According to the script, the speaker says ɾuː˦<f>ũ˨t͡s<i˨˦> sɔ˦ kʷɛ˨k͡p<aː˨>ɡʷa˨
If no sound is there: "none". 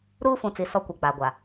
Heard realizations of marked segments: f, i˨, aː˨

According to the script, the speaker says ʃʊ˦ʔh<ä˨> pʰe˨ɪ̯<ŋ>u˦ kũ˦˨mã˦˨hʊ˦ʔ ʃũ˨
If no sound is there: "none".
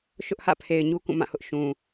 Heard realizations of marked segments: ä̰˦˨, ɲ

